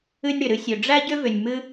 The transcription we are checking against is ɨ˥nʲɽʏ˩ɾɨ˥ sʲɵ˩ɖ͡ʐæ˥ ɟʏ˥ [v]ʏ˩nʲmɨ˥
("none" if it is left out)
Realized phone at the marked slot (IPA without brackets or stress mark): v